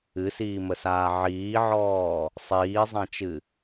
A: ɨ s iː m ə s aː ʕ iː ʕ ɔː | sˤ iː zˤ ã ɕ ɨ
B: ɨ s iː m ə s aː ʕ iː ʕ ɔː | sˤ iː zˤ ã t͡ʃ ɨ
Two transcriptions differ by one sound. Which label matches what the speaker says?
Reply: B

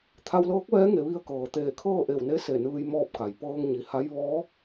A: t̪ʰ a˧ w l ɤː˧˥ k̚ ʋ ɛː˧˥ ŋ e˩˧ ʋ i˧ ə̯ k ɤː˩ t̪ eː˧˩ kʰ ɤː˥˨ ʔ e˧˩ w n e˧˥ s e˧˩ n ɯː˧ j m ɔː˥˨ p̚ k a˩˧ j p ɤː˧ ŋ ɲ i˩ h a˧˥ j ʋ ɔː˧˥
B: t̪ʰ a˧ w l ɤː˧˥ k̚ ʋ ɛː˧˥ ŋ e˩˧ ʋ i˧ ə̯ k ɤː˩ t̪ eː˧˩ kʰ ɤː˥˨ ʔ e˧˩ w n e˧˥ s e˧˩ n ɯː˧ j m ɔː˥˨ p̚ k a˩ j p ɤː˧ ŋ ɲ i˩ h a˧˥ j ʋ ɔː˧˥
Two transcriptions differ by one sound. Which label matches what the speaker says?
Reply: B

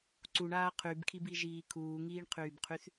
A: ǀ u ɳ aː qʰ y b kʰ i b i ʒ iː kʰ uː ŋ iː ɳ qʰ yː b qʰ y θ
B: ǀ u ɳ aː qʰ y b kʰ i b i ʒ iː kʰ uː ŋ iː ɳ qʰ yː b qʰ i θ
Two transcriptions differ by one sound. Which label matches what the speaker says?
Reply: A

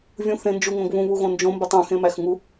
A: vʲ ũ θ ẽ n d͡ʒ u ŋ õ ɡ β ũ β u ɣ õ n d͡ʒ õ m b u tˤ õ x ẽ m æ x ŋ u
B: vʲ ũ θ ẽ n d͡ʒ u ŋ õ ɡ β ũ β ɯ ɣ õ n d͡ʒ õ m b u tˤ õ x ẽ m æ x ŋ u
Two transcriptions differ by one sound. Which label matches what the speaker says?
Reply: A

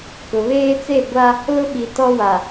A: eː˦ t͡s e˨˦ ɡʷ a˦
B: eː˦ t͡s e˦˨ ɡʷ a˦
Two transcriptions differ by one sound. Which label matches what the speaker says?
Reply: B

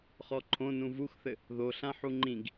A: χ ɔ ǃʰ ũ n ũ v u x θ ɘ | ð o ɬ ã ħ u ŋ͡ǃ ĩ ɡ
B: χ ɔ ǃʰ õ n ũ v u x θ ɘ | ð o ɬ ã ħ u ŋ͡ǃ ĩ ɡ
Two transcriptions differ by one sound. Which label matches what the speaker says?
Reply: B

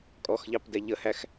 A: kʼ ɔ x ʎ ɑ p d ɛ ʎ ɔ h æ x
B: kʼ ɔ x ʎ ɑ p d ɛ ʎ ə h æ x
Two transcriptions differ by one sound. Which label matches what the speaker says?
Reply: B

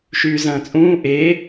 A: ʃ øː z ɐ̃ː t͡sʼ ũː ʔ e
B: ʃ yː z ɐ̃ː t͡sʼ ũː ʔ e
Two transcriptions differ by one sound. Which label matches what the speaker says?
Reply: B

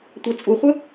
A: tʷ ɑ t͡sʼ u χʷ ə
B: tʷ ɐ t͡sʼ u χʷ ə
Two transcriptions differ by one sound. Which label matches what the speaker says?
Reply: A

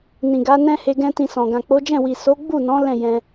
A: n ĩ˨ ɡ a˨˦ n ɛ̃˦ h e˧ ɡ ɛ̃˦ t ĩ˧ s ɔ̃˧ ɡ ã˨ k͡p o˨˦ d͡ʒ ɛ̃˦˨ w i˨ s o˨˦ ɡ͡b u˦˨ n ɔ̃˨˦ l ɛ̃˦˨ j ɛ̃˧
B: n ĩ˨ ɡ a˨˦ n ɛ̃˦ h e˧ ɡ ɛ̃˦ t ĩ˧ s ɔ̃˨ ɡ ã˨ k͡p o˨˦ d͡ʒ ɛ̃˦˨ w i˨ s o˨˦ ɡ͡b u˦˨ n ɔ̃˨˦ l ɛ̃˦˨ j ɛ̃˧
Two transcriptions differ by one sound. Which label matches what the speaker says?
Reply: B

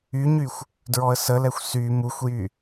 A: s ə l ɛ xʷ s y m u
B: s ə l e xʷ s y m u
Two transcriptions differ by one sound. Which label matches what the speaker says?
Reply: A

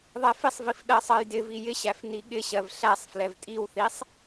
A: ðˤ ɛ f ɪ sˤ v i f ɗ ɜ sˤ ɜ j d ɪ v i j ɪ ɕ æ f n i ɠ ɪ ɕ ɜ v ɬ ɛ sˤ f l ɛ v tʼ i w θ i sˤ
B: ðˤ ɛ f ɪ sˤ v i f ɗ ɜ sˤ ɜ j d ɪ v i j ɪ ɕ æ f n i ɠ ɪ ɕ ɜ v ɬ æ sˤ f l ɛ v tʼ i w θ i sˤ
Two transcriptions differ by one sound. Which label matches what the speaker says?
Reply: B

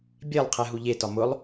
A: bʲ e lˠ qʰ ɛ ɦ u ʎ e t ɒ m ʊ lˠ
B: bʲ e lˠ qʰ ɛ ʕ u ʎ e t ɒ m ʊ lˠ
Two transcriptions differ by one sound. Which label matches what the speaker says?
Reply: A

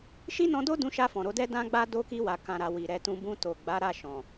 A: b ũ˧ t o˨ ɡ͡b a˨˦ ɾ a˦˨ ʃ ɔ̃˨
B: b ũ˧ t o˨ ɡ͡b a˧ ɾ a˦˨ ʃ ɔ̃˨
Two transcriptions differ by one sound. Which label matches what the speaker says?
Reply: A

